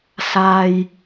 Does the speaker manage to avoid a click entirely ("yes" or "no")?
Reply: yes